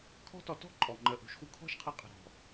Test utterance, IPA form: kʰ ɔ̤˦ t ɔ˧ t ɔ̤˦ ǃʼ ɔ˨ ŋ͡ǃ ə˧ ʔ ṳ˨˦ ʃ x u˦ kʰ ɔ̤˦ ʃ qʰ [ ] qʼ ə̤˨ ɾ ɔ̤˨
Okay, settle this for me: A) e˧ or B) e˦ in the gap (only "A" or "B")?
A